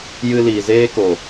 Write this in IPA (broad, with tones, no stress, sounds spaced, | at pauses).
j ɨ˧ l iː˨ z eː˧ k o˨